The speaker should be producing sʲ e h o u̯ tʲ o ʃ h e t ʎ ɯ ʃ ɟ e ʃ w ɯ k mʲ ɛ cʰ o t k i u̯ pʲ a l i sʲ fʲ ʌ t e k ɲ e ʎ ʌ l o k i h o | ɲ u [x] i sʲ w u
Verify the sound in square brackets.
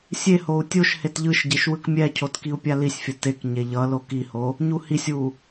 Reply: incorrect: h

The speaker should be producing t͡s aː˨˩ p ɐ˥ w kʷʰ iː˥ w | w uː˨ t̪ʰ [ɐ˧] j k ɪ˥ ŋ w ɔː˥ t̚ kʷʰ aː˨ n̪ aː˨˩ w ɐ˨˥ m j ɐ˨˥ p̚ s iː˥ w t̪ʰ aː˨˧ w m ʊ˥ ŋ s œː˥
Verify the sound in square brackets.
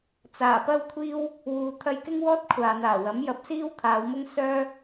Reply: correct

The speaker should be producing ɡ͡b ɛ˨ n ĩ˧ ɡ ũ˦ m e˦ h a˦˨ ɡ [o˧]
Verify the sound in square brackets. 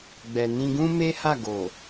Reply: incorrect: o˨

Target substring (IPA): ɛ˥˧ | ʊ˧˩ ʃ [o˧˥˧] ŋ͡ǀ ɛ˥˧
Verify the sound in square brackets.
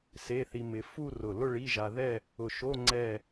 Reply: correct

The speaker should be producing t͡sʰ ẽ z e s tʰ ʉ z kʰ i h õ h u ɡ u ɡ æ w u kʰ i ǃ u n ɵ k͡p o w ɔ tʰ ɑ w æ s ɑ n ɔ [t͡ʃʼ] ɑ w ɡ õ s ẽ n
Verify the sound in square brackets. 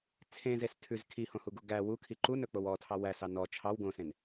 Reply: incorrect: t͡ʃʰ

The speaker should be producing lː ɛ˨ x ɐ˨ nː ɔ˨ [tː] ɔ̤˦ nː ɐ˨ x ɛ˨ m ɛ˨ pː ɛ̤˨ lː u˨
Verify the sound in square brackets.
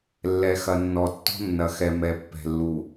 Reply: correct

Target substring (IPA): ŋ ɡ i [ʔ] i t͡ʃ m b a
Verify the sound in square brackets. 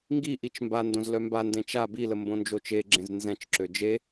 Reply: correct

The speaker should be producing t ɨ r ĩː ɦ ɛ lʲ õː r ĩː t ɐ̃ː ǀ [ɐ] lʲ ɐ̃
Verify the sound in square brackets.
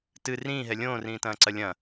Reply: correct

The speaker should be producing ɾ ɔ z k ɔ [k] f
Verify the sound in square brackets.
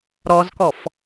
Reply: incorrect: none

